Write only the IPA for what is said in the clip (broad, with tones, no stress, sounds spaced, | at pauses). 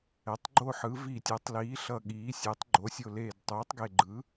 ɛ˩˧ tˤ ɡ͡ǃ o˦˨ ħ ɯ˩˧ v i˨˩ tʲ ɯ˩˧ tˤ l iː˩˧ ɬ ʌ˨˩ ɠ iː˩˧ sʲ e˩˧ tˤ ɡ͡ǃ o˩˧ sʲ o˨˩ l eː˨˩ d tˤ uː˩˧ tˤ ɡ e˨˩ ɡ͡ǃ ɯ˩˧